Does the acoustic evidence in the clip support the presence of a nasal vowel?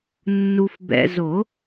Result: no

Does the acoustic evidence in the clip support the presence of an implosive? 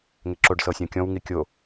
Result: no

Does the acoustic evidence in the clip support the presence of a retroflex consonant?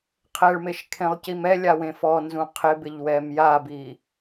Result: yes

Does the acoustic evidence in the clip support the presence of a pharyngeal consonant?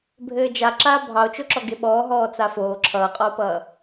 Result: no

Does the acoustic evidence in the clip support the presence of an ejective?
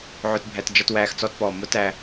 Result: no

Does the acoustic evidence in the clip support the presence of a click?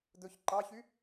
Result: yes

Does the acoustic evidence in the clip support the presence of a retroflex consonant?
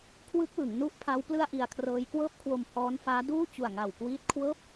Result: no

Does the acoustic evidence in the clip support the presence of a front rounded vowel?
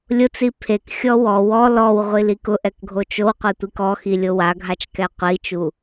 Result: no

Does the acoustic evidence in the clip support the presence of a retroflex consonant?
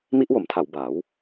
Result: no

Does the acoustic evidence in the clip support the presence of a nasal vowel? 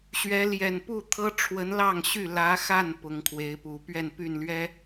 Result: no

